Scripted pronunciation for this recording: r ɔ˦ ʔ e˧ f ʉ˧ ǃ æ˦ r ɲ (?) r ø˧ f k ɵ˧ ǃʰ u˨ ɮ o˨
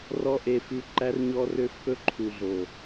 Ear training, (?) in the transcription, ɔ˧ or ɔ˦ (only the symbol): ɔ˦